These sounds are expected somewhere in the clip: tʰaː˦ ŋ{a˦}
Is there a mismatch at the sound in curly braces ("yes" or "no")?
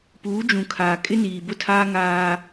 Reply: yes